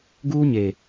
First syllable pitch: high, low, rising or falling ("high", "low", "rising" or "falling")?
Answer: high